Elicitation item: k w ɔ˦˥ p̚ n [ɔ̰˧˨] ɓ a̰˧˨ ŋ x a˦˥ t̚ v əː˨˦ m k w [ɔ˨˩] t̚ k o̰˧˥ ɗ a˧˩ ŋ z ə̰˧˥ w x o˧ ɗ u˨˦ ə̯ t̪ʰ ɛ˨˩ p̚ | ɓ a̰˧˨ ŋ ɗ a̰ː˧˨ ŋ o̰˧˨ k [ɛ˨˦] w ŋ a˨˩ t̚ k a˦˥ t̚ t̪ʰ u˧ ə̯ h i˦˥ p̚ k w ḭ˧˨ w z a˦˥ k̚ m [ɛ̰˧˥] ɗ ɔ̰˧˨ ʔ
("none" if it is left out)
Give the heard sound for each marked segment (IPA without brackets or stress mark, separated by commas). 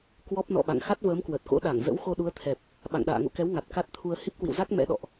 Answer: ɔ̰˧˨, ə˨˩, ɛ˨˦, ɛ̰˧˥